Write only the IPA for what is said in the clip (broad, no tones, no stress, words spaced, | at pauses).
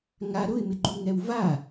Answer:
ŋa ɾʊɪ̯mɪɡ͡ǃuŋɛw va